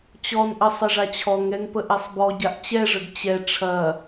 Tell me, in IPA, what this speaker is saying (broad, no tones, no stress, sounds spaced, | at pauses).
t͡ɕ ɔ n ʔ ə sˤ ɐ ʐ a t͡ɕʰ ɔ ŋ ɛ ŋ p ə ʔ ɛ sˤ b ɔ ɟ a ʔ t͡ɕ ɛ ʐ ə ɡ t͡ɕ ɛ ʈ͡ʂʰ ɐ